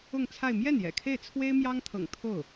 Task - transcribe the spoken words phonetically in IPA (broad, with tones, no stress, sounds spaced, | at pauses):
ʊ˥˧ ŋ t͡sʰ a˥˧ ɪ̯ m j ɛ˥˩ n j ɛ̰˨˩ kʰ e˥˩ ɪ̯ t͡sʰ w e˥ ɪ̯ m j ɑ˥ ŋ t̪ʰ ɤ̰˨˩ ŋ t̪ʰ o˥˩ ʊ̯